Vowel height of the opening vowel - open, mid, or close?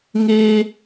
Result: mid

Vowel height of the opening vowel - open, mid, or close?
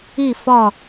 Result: close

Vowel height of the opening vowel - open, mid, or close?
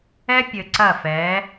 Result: mid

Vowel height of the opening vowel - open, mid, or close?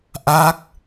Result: open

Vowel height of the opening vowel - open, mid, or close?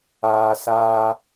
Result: open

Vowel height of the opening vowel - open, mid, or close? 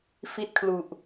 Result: close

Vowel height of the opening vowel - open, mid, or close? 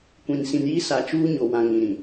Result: close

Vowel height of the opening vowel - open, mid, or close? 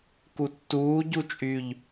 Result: close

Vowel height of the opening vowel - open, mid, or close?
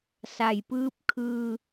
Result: open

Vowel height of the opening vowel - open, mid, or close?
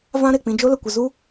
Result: open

